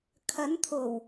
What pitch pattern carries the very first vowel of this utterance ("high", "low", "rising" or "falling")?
rising